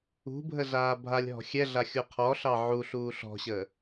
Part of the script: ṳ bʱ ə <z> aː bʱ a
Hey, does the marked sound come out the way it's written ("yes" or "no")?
yes